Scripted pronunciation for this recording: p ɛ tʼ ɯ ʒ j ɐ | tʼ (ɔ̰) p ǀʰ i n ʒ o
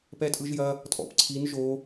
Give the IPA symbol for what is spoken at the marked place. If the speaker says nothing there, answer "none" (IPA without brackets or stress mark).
ɔ̰